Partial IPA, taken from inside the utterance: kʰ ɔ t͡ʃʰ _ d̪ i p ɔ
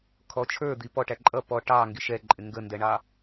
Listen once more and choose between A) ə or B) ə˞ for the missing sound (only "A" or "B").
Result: B